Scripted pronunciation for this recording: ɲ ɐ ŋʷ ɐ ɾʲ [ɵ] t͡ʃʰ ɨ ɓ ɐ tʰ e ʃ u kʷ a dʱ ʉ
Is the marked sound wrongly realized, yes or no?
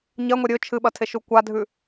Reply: no